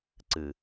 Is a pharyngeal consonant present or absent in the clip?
absent